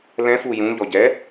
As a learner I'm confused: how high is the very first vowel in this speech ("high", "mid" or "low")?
mid